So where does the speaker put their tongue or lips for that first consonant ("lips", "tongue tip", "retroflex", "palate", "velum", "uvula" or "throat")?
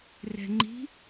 tongue tip